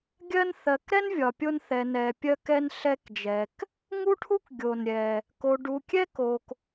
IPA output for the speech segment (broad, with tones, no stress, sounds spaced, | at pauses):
ɡʲ ɜ˦ n θ ɜ˨ k ɾ ɛ˥ n vʲ ɒ˨ pʲ o˦ n θ ɛ˨ n ɛ˨ pʲ ɜ˦ k ɛ˦ n ɬ ɛ˦ k d͡ʒ ɛ˨ k | ŋ u˥ ʈʰ u˥ k ɡʲ o˩ n ɾʲ ɛ˩ | k o˨ ɖ u˨ kʲ ɛ˥ k o˨ k